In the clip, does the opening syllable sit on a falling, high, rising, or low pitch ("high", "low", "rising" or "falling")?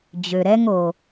low